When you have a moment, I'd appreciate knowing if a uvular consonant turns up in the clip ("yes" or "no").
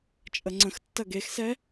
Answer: no